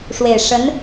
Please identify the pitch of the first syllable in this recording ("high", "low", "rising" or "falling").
low